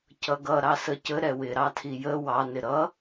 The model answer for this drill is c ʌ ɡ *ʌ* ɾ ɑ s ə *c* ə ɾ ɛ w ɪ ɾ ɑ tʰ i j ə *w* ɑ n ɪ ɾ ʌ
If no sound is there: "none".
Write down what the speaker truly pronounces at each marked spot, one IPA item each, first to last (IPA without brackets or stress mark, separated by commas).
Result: ʌ, c, w